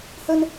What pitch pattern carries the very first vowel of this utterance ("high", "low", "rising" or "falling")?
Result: high